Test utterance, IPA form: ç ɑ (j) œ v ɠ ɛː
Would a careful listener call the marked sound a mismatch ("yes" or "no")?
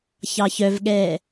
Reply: yes